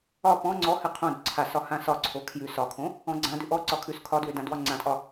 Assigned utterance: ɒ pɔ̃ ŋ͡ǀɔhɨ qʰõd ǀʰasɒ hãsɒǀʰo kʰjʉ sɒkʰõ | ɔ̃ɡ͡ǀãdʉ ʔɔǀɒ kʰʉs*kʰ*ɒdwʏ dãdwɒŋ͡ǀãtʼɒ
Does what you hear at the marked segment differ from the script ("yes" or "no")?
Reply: no